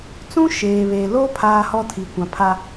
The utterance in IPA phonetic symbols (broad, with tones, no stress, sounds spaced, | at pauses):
t͡s ũ˦ ʃ eː˨ β e˨ l o˦ pʰ aː˦ h ɔ˦ tʰ i˨ kʷ ã˨ pʰ a˦